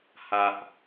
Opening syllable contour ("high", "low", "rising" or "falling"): low